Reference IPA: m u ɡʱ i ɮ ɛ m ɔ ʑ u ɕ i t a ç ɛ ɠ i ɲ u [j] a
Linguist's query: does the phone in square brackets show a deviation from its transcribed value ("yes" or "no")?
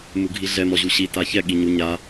yes